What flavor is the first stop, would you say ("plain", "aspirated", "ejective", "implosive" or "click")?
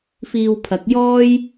aspirated